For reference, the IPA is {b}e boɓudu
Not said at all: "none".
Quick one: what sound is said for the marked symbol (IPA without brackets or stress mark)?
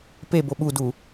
p